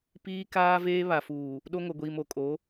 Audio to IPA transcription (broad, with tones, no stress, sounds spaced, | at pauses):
p iː˦ k aː˦ v eː˦ β a˨ f uː˨ | ɗ o˦ ŋ o˨ ɡʷ iː˨ m o˨ kʼ o˨˦